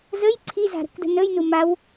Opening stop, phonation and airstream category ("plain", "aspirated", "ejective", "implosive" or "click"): click